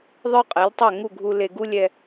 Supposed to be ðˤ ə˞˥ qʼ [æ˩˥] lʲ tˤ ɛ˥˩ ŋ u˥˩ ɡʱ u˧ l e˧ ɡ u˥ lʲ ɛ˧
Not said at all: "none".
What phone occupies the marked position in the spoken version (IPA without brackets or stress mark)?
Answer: ɛ˩˥